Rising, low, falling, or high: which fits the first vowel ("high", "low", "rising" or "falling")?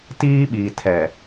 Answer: high